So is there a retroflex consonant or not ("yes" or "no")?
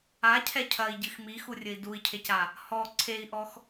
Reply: no